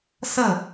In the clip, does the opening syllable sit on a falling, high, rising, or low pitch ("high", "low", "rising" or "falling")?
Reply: falling